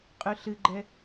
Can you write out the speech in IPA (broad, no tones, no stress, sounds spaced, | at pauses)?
qʼ ʉ ɬ ɨ ɡ͡ǃ ɛ